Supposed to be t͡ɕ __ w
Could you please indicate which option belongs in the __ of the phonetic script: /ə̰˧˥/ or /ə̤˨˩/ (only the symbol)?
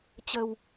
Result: ə̤˨˩